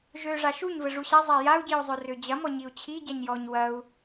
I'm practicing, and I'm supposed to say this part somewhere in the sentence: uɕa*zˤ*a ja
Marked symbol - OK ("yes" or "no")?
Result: yes